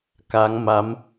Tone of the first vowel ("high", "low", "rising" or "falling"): rising